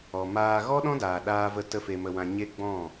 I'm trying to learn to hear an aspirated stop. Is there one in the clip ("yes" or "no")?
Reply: no